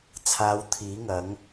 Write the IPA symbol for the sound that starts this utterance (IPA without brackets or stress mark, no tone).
t͡sʰ